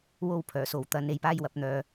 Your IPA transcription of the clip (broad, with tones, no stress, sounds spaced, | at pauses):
w o˥ w pʰ œː˨˩ s o˨ w t̪ ɐ˨˧ n e˨ j p aː˥ j w ɐ˧ p̚ n̪ œː˨